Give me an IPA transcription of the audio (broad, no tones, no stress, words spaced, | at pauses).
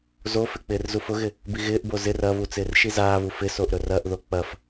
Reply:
zofɪ k͡pɪːrzufʊɣɪ | biɣɪːʔbo zɪr ɐβu t͡sɪːrʃizaːβu fɪsoʔ ɾɵrɐʔðo k͡pɐf